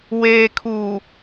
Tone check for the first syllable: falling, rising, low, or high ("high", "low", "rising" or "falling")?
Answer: low